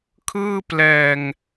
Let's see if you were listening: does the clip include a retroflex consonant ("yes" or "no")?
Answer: no